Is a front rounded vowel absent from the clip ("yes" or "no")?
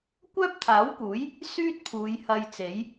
no